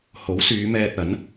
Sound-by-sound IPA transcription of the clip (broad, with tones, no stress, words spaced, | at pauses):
ho˨˥wsyː˨˧mɛː˧t̚ɐ˨˥n